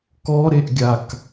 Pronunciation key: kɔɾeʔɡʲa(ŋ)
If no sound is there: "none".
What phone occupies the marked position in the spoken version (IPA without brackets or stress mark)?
k